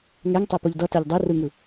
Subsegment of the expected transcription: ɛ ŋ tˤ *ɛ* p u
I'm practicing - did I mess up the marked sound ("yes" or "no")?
no